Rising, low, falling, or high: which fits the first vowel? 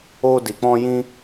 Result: high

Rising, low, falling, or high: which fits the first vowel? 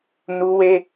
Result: high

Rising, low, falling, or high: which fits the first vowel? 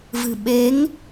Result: low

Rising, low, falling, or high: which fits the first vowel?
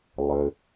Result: low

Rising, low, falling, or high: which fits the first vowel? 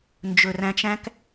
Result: low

